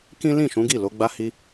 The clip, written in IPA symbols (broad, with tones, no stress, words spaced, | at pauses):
kĩ˦ lĩ˦˨ʃũ˨˦ɡi˦˨lo˨˦ ɡ͡ba˧hi˧